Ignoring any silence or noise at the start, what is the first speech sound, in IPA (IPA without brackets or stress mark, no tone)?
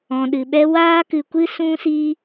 ɔ̃